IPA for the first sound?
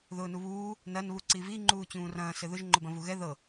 ð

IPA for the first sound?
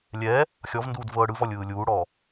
lʲ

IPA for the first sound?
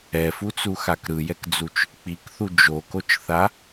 ɛ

